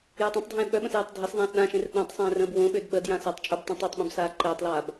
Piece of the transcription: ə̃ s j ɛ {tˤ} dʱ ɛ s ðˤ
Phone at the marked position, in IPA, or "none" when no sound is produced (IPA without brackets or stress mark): tˤ